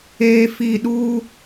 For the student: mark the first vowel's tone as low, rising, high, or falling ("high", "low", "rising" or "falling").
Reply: low